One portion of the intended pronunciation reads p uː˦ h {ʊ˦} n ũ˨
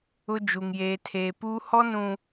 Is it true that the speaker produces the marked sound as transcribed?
no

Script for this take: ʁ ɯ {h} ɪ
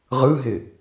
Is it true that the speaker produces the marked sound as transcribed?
no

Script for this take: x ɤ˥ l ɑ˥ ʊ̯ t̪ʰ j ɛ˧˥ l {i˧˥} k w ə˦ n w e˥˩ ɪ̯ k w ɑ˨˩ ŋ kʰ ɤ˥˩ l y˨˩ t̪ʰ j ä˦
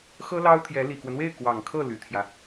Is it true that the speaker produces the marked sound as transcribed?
no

